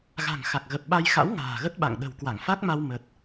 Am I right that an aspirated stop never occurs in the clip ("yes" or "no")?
yes